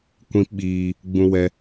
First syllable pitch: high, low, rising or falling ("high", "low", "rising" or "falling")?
high